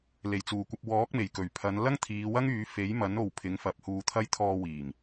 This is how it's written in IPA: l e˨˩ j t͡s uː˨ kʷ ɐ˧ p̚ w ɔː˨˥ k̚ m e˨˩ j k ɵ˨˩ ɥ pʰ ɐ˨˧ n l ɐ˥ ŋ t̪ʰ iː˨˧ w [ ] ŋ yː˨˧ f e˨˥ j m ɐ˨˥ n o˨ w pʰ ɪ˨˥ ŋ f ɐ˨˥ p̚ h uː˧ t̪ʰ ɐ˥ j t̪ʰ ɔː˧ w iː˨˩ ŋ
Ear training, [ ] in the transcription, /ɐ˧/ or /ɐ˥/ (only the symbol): ɐ˥